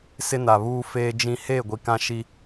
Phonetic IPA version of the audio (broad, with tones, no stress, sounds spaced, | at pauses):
s ɪ˦ n a˨ β uː˦ f eː˦ d͡ʒ ĩ˦ h eː˦˨ ɡʷ i˨ k ã˦ ʃ i˦